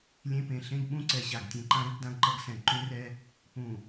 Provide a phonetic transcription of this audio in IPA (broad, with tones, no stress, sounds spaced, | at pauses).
lʲ ẽ˦ p ẽ˨ ɬ ẽ˦ ɡ ɓ ũ˦ ǀ ɛ˨ ɕ a˨ ɡ tʲ ẽ˨ ǃ ã˦ ɾ ɨ˦ ɡ d ã˦ ɡ ǃ ʌ˦ ɡ s ɛ̃˨ ǃ ũ˦ r ɛ˦ | p ũ˨